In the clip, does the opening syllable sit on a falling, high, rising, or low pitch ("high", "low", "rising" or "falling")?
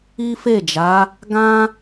high